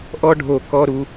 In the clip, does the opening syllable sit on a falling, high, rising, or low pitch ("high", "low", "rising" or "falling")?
high